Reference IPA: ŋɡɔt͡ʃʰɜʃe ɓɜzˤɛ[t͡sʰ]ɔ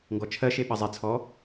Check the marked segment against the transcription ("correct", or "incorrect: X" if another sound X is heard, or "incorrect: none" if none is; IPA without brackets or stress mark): correct